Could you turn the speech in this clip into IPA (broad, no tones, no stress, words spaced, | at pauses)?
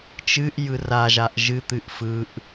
t͡ʃɨʔ jɯraʒaʔ ʒɨt̪ɨʔ fɯʔ